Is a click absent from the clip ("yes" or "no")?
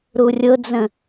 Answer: yes